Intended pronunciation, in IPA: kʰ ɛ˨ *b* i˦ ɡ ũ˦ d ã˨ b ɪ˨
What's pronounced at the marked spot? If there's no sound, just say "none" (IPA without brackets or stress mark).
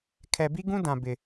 b